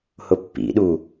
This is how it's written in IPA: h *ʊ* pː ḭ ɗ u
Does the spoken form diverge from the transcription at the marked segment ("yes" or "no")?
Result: no